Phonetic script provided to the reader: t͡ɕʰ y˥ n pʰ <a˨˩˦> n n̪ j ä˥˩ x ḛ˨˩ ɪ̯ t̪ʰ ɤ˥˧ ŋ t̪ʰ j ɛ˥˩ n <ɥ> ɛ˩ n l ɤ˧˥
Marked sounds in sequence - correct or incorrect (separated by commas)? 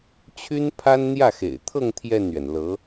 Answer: incorrect, correct